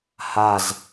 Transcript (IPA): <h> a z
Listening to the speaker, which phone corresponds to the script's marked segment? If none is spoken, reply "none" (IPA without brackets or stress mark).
h